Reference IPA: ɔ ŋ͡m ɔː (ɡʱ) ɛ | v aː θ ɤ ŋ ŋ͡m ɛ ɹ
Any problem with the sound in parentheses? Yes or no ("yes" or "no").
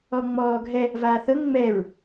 no